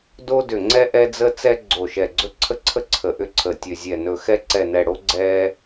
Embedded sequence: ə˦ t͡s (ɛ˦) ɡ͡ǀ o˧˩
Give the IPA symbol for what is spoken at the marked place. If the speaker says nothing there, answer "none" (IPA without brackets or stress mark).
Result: ɛ˦